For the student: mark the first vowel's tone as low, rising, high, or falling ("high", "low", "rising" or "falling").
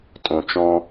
low